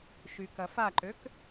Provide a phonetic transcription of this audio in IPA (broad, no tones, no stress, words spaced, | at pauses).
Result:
ʃykɐfaǃøk